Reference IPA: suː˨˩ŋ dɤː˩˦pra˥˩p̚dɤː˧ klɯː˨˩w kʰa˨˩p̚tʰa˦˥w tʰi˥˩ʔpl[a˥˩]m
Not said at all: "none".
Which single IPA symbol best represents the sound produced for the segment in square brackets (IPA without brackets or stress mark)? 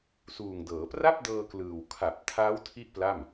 a˥˩